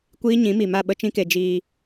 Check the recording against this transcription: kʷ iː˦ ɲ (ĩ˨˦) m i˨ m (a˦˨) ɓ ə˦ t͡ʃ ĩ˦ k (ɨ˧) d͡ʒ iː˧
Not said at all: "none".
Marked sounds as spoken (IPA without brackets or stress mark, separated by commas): ĩ˨˦, a˦˨, e˧